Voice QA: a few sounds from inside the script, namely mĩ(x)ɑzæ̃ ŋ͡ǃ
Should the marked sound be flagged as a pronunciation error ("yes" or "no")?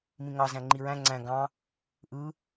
yes